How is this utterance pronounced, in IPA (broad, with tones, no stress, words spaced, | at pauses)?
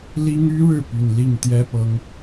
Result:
li˥ŋy˥ɻɻ̩˥˩ py˨˩nli˥˩ŋ t̪jɛ˥pɤ˧˥ŋ